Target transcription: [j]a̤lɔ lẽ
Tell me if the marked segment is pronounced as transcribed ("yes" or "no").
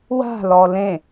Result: no